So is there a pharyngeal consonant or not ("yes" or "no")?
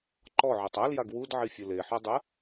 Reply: yes